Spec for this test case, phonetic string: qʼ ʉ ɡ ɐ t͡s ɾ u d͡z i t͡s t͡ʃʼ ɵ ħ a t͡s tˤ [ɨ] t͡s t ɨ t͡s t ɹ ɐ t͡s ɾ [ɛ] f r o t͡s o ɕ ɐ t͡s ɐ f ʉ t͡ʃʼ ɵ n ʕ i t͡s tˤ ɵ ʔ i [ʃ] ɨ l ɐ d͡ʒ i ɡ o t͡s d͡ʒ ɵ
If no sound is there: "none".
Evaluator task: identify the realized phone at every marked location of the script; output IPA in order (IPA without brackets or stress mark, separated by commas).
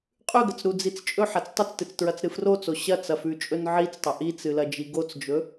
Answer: ɨ, ɨ, t͡s